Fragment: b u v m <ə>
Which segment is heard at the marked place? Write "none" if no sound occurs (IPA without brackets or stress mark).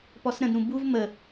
ə